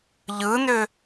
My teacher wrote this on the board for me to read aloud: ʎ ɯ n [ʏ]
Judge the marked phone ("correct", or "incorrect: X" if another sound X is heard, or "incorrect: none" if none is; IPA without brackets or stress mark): correct